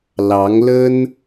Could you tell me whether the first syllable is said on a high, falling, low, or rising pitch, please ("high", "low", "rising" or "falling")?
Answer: rising